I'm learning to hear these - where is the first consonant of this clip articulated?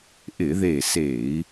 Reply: throat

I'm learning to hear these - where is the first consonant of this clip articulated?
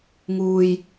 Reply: velum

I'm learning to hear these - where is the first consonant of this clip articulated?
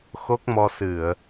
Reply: velum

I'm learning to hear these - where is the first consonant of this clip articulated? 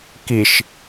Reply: velum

